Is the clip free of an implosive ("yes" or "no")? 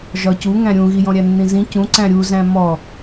yes